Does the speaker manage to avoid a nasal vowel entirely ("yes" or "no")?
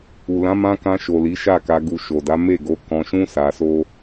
no